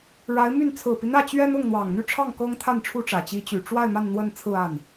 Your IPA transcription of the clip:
ɻ a˧˥ ɪ̯ m y˥˩ n t͡sʰ ɹ̩˨˩ p i˦ n̪ ä˥˩ t͡ɕ ɥ ɛ˥ n ʊ˥˩ ŋ n̪ w ɑ˨˩ ŋ n̪ y˥˧ ʈ͡ʂʰ ɑ˥˩ ŋ k ɤ˥ ŋ t̪ʰ a˥˩ n ʈ͡ʂʰ u˥ ʈ͡ʂ ä˨˩ t͡ɕ i˧˥ t͡ɕ y˨˩ ʈ͡ʂ w a˥˧ ɪ̯ m a˥˧ n n̪ w ə˥˧ n t͡sʰ ɹ̩˥˧ a˥˩ n

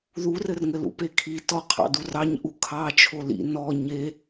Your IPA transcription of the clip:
ð u r ɘ r ŋ ɘ l ṵ p e kʰ i t ɔ qʰ ɑ̰ d u r ɑ ɲ ʔ u kʰ ɑ t͡ʃʰ o l ḭ n ɔ ɲ e

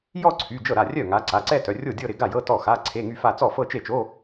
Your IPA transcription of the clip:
j ɔ˥˧ ǀʰ y˩˧˩ d͡ʒ ɤ˥˩ ɾ a˥˩ rʲ œ˥˩ ŋ a˨˦ ǀ a˩˧˩ ǀ ɛ˥˧ t œ˩˧˩ rʲ o˥˩ dʲ ɤ˥˧ ɾ ɪ˨˦ ɡ a˥˩ j ɤ˧˥˧ t ɔ˥˩ x a˧˥˧ ǀʰ e˧˥˧ ŋ y˥˧ f a˥˧ t͡s ɔ˥˩ f ɤ˥˧ t͡ʃ e˥˩ t͡ʃ o˧˥˧

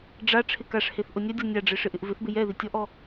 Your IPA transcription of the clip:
ɖ͡ʐ a ʈ͡ʂʰ ɪ k a ʂ h e θ ʔ ʊ nʲ a dʲ ɔ nʲ a ɖ͡ʐ e ʂ ɪ ʔ ɪ ʔ v ɪ θ b ɪ j ɛ ð i tʲ ɔ ʔ ɔ

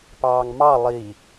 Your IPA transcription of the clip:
p ɑː ŋ m ɑ lˠ i

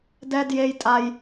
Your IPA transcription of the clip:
d ɛ˦ d j e˦ j tʼ a˦ j

